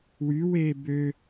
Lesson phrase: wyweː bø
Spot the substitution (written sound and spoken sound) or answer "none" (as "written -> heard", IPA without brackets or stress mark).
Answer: none